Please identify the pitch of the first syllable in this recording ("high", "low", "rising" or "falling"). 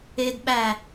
high